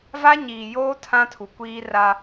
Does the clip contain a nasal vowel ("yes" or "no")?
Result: yes